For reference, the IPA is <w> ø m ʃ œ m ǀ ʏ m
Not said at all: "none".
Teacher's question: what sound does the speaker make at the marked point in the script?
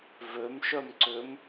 v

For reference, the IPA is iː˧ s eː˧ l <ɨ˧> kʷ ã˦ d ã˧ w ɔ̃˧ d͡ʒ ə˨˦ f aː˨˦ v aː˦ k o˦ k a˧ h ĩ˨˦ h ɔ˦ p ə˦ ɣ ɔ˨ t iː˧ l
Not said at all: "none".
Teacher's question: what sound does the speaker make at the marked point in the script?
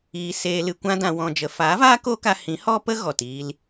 ɨ˧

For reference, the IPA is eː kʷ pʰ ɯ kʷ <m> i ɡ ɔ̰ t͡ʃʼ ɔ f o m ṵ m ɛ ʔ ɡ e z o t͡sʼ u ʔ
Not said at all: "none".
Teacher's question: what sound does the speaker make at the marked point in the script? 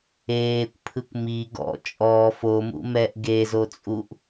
m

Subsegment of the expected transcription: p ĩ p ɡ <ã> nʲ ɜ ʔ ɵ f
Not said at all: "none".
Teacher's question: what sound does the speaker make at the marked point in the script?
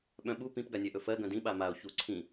a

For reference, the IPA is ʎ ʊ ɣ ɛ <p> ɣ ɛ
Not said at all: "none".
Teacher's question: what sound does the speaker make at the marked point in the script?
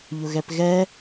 p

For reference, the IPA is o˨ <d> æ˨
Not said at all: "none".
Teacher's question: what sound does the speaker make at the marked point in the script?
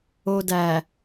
d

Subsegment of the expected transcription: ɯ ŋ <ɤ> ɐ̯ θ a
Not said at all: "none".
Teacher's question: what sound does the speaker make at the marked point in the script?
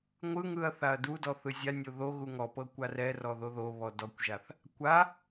ɯ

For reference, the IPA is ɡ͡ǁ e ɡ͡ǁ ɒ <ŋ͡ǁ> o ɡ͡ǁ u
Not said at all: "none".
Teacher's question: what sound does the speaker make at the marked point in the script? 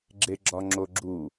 ŋ͡ǁ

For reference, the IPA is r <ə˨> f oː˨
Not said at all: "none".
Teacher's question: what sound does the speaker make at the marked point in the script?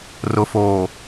ʊ˨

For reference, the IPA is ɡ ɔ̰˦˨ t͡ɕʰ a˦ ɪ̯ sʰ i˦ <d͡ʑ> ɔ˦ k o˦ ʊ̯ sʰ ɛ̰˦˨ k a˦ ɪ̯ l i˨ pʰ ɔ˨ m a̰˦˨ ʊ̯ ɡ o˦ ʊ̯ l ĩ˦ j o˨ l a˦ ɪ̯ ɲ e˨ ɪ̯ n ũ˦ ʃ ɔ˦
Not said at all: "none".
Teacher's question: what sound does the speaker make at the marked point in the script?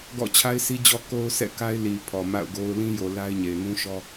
d͡ʑ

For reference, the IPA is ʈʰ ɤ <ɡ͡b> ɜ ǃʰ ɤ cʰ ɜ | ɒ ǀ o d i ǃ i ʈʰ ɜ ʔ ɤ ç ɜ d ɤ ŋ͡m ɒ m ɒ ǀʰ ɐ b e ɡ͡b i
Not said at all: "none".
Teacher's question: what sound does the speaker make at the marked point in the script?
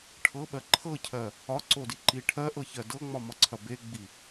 ɓ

